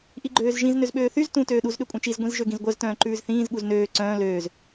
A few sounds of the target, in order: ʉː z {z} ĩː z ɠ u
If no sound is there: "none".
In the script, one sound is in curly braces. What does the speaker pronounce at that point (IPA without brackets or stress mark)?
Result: θ